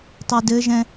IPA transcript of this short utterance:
tˤ u d ɘ ʒ ɛ̃

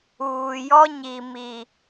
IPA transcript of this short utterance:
uː˨ j ɔ˦ ɲ i˨ m i˨

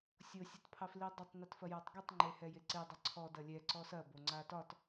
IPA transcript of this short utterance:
sʲ o sʲ ɐ t pʰ ɑ f l i dˤ o tˤ n ɪ t f ɐ j a tˤ ɡ e tˤ ŋ͡ǃ e h ɛ j e ǀ e dˤ ɐ ǀʰ ɔ d ɐ lʲ ɛ ǀ ɔ s ɐ b o ŋ͡ǀ a t ɒ t

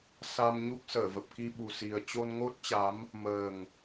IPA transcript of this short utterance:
s a˧ m ɲ u˦˥ k̚ s əː˧˩ v ə˨˩ p̚ k i˧ ɓ u˨˩ s i˨˩ ə̯ t͡ɕ o˧ n ŋ o˦˥ t̚ t͡ɕ a˨˦ m | m əː˨˩ ŋ

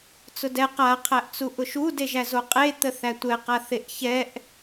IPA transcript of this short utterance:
t͡s ʊ d ɛ q a qʰ æ ʔ t͡s u ʔ ʊ ʃ u d e ʒ æ z o qʼ e t̪ ə θ æ tʷ ɛ q a θ e ʔ ç ɛ ʔ

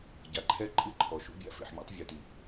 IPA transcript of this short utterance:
ɟ a˨ ǃʰ ɛ˦ ǃʼ ɨ˦ ǃʰ ɔ˨ ʃ ṵ˦ bʲ a̰˦ f ḛ˨ ħ mʲ a̰˦ tˤ vʲ u˨ t i˨

